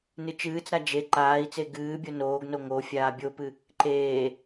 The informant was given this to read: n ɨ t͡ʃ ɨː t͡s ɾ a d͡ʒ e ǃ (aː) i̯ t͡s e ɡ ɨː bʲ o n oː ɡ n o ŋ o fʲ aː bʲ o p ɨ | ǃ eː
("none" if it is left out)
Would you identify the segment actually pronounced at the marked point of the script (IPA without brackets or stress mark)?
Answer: aː